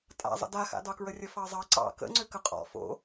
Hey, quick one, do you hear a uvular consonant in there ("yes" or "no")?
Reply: yes